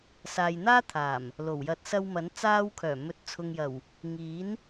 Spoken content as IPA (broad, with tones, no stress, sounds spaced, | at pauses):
s aː˨ j n̪ aː˥ t̪ʰ aː˨˩ m | l o˨˩ w j ɐ˧ t̚ s ɐ˧ w m ɐ˨˥ n t͡s aː˧ w kʰ œː˨˩ m ɵ˨ t̚ t͡sʰ ʊ˨ ŋ j ɐ˨˩ w | ŋ iː˨˥ n